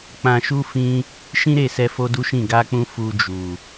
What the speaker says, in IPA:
k͡pã˧ʃu˦ fĩ˦ | ʃĩ˦ɾe˦˨sɛ˧ fo˦du˦ʃĩ˦˨ ɡa˧k͡pũ˧ fu˧d͡ʒu˨

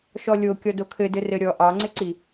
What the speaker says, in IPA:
ʃɔlʲo kʲɔdokʰɘ dɘrɘɾʲɔ ʔɑŋ͡ǀɪǀi

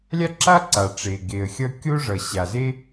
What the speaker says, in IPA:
lʲa˥ǁa˥ ǀa˩ʈ͡ʂe˩ɡe˩ə̯xʲʌ˥ kʲo˥ʐʌ˩ ɕa˩ze˥

